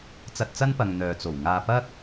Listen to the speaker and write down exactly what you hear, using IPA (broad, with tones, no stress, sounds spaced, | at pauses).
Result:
t͡s ɐ˧ t̚ t͡s ɐ˥ n p ɐ˨ ŋ n̪ œː˨ t͡s o˨˩ w ŋ aː˧ p ɐ˥ k̚